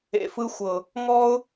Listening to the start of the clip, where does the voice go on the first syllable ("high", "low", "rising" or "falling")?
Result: low